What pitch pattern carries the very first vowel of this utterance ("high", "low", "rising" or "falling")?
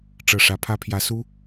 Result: low